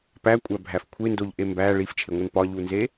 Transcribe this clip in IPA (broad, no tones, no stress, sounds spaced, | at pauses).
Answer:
p æ kʷʼ æ bʱ æ f kʷʰ e n d o ʎ ʔ e m b æ ɭ i f t͡ʃʰ e ŋʷ e n p ɒ ʎ u n z e